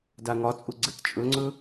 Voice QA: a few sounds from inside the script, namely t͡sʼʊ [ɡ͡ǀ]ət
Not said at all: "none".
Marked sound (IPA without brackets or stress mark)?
ɡ͡ǀ